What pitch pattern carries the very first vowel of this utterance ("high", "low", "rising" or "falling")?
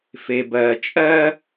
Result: low